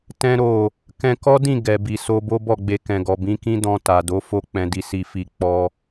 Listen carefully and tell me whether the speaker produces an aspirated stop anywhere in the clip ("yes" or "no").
no